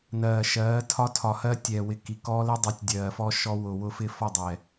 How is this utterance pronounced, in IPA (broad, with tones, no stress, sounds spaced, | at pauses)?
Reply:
n ɜː˨ ʃ ɜː˨˦ tʰ ɒ˦ tʰ ɒ˨ h ɜ˦ tʲ ɛː˨ w ɪ˨ k i˨ k ɔː˦ l ɪ˦ dˤ i˨˦ tʲ dʲ ɜː˨ f ɔ˦ ʃ ɔ˦ w ʊ˨ w ʊ˦ f ɪ˦ f ɔ˦˨ dˤ ɛ˨